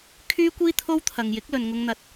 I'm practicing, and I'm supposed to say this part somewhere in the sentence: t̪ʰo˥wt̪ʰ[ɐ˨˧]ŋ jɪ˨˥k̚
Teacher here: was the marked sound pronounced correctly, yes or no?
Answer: no